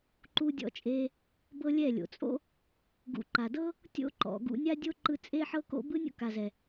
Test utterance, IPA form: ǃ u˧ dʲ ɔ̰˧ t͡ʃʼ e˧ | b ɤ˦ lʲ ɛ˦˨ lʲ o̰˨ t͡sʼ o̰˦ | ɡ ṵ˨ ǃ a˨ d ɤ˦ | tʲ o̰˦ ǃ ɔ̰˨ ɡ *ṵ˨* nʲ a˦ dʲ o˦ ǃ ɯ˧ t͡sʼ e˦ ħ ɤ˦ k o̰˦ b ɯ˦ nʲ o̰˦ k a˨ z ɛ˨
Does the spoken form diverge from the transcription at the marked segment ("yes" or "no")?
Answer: yes